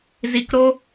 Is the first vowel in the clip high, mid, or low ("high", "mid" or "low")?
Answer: high